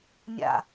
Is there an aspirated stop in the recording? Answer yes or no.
no